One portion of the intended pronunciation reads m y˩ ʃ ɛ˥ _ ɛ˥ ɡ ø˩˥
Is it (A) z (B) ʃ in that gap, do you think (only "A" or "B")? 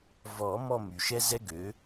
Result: A